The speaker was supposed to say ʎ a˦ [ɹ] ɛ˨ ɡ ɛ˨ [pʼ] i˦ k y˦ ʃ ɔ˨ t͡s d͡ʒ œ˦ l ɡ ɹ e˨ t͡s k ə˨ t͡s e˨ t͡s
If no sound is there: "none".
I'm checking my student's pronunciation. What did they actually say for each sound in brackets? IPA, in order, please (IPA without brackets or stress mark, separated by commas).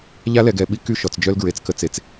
l, ɓ